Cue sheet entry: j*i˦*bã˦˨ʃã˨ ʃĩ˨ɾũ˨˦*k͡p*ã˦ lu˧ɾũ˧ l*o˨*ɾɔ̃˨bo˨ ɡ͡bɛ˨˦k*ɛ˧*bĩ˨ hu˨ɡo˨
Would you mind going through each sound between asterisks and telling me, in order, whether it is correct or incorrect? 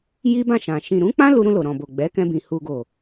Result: correct, correct, correct, incorrect

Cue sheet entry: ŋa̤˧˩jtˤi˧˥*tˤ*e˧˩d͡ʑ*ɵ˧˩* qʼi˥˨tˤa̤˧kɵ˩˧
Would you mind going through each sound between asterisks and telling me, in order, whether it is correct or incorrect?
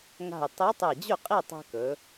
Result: correct, incorrect

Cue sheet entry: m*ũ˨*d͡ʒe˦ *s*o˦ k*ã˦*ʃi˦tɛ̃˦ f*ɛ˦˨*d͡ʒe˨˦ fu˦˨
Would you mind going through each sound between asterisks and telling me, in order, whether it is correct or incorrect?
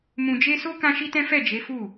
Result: incorrect, correct, correct, correct

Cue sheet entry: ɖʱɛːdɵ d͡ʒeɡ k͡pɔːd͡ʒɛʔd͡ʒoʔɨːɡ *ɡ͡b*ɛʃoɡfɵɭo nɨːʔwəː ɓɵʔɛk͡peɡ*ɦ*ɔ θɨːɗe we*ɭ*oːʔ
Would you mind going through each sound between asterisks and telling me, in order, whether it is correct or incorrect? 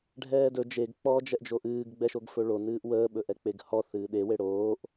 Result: correct, incorrect, incorrect

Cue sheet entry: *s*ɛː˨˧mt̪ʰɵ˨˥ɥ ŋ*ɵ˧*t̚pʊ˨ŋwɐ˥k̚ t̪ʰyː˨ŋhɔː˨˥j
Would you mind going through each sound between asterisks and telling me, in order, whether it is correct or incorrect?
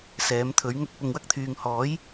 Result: correct, correct

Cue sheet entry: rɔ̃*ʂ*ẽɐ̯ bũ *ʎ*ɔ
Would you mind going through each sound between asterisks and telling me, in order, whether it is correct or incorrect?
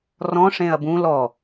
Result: correct, incorrect

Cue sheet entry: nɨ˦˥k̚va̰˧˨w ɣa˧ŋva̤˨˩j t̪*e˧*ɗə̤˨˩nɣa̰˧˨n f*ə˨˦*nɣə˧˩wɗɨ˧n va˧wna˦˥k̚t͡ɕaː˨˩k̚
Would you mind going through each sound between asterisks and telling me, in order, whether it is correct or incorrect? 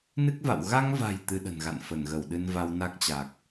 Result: incorrect, incorrect

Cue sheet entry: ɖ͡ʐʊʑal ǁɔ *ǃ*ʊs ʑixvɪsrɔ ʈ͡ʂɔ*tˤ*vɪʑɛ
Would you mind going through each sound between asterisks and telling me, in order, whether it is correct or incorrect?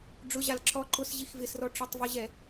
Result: correct, correct

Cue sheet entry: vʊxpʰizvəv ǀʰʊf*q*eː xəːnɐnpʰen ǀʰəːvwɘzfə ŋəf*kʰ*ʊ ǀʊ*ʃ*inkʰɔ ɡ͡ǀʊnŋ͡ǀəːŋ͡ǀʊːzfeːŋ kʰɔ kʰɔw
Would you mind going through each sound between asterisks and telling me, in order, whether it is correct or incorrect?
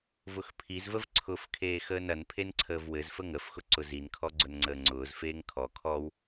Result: incorrect, incorrect, incorrect

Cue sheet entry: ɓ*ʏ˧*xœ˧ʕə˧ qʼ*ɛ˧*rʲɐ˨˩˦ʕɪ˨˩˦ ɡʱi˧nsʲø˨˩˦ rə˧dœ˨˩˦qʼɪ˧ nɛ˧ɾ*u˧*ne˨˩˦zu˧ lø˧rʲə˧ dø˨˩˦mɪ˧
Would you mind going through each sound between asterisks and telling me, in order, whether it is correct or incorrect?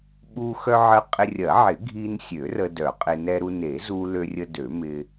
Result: incorrect, incorrect, correct

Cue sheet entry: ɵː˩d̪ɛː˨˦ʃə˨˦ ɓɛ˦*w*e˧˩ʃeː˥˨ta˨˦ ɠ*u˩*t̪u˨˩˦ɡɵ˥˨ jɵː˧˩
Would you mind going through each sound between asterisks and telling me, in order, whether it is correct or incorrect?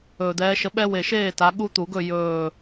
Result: correct, incorrect

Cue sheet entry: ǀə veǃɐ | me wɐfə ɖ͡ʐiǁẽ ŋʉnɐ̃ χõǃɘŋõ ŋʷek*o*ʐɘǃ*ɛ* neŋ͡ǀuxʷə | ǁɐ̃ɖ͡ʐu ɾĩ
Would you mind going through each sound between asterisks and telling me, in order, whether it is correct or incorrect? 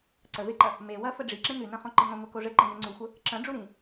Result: correct, incorrect

